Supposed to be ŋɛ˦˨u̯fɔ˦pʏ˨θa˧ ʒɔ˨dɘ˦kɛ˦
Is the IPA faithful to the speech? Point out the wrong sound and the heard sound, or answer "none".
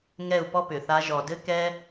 f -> p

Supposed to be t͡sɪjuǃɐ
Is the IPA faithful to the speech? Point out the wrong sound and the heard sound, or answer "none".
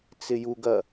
ǃ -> ɡ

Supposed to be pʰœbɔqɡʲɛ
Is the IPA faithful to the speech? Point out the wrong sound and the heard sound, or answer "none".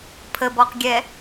œ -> ə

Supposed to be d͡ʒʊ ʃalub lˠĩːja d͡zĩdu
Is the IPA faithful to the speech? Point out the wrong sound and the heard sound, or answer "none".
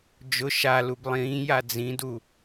none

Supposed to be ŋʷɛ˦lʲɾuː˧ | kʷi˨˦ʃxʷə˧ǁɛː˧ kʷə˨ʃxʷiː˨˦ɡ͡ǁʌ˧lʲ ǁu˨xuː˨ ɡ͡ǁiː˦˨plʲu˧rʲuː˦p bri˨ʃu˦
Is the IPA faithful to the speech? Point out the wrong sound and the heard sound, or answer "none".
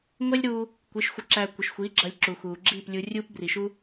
ɛː˧ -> æː˧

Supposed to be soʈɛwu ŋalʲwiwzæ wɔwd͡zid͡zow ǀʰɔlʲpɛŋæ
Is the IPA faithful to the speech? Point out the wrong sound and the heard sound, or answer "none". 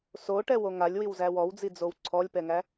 u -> o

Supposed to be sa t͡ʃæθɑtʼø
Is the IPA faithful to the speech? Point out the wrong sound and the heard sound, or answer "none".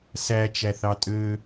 a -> æ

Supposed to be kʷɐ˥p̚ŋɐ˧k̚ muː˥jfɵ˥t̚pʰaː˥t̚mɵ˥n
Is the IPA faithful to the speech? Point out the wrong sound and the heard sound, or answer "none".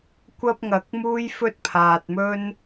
aː˥ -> aː˧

